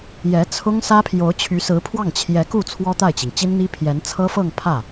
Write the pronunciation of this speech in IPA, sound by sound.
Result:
jɛ˧˥t͡sʰʊ˥ŋ sä˥pʰjo˧˥ʊ̯t͡ɕʰy˧˥ sɹ̩˧˥pʰwɑ˥˩ŋ t͡ɕʰjɛ˧˥ku˥˩ t͡sʰwɔ˥t̪a˥˩ɪ̯t͡ɕi˩ŋ t͡ɕi˥nn̪i˥pʰjɛ˧˥n t͡sʰɤ˥fɤ˥˧ŋ pʰä˥˩

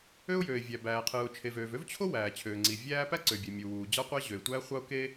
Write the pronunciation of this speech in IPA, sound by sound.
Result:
ø˥ʊ̯jøː˩ɪ̯vʲæ˩ bæː˩qʰɯː˩ʊ̯t͡ʃʰe˩vøː˩v ø˥vt͡ɕʰo˥ wæː˩t͡ɕʰøː˩ŋ͡ǀi˩ vʲæː˥ pæ˥ǀø˩bʲe˩ mʲu˩wuː˩ d͡ʑɑ˥qʷæ˥ ʑø˩ɪ̯tʷæː˥χʷɑ˥ʊ̯ ke˥

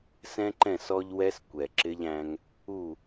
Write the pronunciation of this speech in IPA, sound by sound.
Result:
sɛ̃˦ǃɛ̃˦˨s ɔ˦ʎwɛ˦s kʷɛ˨ǁɪ˦ʎæ̃˦ŋ | u˦˨

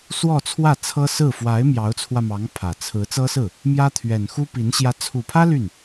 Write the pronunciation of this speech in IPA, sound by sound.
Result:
swɔ˥˧t͡sʰwä˥˩t͡sʰɤ˥sɹ̩˥˩ fwa˧˥ɪ̯ mjɑ˧˥ʊ̯t͡sʰwä˧mɑ˧˥ŋ pʰä˨˩t͡sʰɹ̩˧˥ t͡sɤ˥sɹ̩˥˩ | mjä˥t̪ʰɥɛ˨˩n xu˥pi˧˥n ɕjä˧˥t͡sʰu˨˩pʰä˥ ly˥˩n

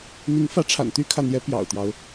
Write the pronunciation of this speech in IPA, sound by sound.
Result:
n̪i˧˥ŋfä˧˥ʈ͡ʂʰa̰˨˩nt̪y˥ kʰä˥˩n̪jɛ˥ pjɑ̰˨˩ʊ̯t̪jɑ˦ʊ̯

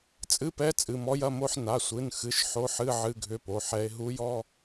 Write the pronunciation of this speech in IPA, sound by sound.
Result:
t͡sʼɨ˧˥˧pɛ˧˥˧ t͡sʼɨ˩˧˩mɔ˧˥jɐ˧˥˧mo˧˥˧ħ na˩˧˩sʷɨ˩˧˩nxɨ˩˧˩ʃ ħo˧˥˧ħɨ˧˥˧ ʕɨ˧˥˧ɡʱʏ˧˥˧po˩˧˩ħɛ˧˥e̯ ɦu˧˥jɔ˧˥˧

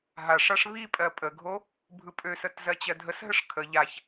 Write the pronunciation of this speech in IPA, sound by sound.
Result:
ɦaʂaʂ βipʼɜ pʼəɡʱo | bʱɯpʼøsət zɜt͡ɕɜdʱəsɦəʂ kʰə ʎaç

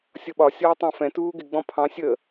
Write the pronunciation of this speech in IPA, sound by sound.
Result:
sʲʌɓɒ sʲɒːtˤɑ̃fɛ̃ tuːɡɪ ɡ͡bɔ̃pʰɑ̃ sʲə

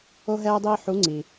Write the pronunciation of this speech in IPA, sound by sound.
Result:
o˥ɦɛː˥dˤiː˥ ħu˧˥ŋ͡ǀi˩

